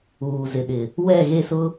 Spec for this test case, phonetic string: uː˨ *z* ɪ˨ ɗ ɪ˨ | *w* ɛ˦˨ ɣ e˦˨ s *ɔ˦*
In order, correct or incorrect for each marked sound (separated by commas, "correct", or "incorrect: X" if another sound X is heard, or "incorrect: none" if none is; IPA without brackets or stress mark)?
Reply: correct, correct, incorrect: ʊ˦